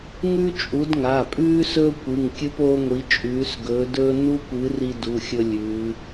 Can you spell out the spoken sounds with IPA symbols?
ŋ ʉ˦ t͡ʃʼ u˨˦ d ŋ a˩˧˩ pʼ ʉː˦ s ɵː˦ kʷ ɨ˩˧˩ ŋ kʲ ɨ˦ p oː˦ ŋʷ i˨˦ t͡ʃʼ ʉː˨˦ s ɡ ɵː˨˦ d ɵː˦ n u˦ kʷ ɨ˨˦ r i˦ d u˩˧˩ xʲ ɵ˦ lʲ ʉː˨˦

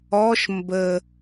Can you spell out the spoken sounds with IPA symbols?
ɔ ʃ m b ə

